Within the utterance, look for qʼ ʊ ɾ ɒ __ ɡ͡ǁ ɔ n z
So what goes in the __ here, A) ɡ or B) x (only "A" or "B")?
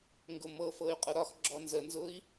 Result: B